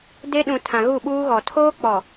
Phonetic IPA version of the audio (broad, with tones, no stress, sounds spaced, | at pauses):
d e˦ ɗ ũ˨ tʰ ã˨ ɣ u˦˨ ɓ uː˦ ɣ ɔ˨ tʰ oː˦ k͡p ɔ˨